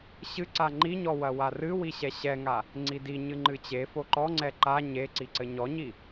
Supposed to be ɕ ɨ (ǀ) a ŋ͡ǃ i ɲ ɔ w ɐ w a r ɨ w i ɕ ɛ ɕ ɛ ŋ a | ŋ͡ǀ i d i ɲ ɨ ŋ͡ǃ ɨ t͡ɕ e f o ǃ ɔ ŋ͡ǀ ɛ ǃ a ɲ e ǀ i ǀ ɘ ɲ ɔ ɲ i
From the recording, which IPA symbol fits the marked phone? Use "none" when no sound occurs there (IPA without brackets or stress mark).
ǀ